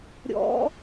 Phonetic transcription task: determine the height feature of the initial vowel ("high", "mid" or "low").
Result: mid